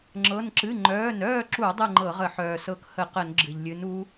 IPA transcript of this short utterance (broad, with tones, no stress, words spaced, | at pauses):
ŋ͡ǁɤ˩˧˩n ǁɨ˩˧˩ŋ͡ǃœː˩˧˩nœː˥˨ǁu˧˩˧ dˤɨ˥˨ŋ͡ǃɤ˧˩˧ʁə˧˩˧ ħœː˩sɤ˨˦k hə˧˩˧qə˧˩˧n ɡ͡ǁɨ˩ʎlʲɨ˨˦n u˨˦